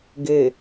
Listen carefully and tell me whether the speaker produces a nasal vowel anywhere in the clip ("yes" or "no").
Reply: no